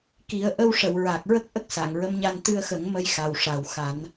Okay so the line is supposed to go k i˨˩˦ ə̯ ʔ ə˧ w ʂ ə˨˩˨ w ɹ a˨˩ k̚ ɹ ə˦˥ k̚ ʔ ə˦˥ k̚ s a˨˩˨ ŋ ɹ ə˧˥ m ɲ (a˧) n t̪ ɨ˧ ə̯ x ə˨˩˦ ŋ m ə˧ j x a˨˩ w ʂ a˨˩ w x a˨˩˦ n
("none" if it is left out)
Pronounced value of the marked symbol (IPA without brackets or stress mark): a˧